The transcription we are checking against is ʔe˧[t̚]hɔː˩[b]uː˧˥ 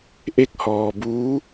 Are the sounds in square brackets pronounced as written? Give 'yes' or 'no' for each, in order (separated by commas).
no, yes